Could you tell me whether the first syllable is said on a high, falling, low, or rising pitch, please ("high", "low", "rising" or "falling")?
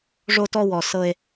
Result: high